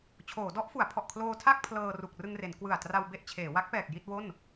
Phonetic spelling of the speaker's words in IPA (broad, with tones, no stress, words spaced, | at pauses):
t͡ɕʰoː˩˦dɔ˦˥ʔfu˩˦a̯ pʰɔ˨˩ʔkʰloː˧tʰa˥˩k̚ pʰlɤː˧ ru˨˩k̚rɯ˧ŋre˩˦n kwɯ˨˩a̯ tra˧w be˥˩ʔ t͡ɕʰeː˩˦ wa˦˥k̚pɛː˨˩k̚ ji˥˩t̚wo˥˩n